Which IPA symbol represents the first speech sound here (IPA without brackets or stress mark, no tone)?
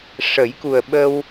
ʂ